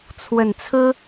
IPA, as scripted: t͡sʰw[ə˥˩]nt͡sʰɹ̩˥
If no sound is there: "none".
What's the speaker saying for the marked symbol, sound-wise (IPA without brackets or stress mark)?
ə˨˩